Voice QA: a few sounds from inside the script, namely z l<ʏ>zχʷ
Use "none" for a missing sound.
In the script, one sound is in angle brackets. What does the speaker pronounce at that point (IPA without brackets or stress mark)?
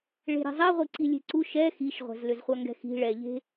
ʏ